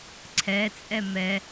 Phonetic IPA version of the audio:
ǀʰɛt͡sʼɛ mɛ

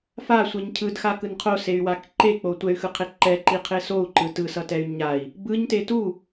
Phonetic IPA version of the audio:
fasʷeɲ cʰɯdxakɯn qʰosey̯wak ǃek͡po tʷɛy̯xɯqʰe ǃɛǃiqʰe sou̯ǃɯ tɯsʌtɛy̯ ɲai̯ | bɯɲte tu

